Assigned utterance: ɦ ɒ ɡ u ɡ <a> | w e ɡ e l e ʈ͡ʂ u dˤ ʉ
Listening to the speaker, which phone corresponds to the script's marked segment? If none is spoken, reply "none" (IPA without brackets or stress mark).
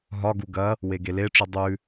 ɐ